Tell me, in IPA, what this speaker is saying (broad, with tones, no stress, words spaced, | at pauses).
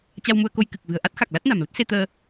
t͡ɕa˧wmu˧ə̯ko˧j kɨ˨˩k̚vɨ̤˨˩ə̯ ʔa˦˥t̚xa˨˩k̚ la˦˥t̚na̤˨˩mlə˦˥t̚se˧ t̪əː˧